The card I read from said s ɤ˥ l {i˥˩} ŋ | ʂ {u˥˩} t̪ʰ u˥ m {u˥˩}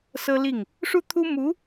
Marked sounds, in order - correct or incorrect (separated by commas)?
correct, incorrect, incorrect